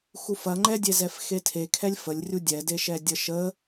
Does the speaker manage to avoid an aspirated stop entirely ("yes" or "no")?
no